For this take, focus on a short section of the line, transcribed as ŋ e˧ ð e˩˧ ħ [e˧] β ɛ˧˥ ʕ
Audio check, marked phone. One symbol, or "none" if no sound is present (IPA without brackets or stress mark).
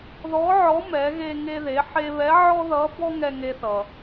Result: e˧